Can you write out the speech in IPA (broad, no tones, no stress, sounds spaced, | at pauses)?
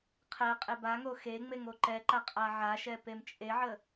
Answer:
qʰ ɛ qʼ ɪ b a ŋ o x e ŋ͡m e ŋ o ǃ ɛ ǃ a qʼ a ʕ a ʃ ɛ p e m t͡ʃʼ e ʕ ə